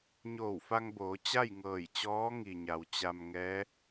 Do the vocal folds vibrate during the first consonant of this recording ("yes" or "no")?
yes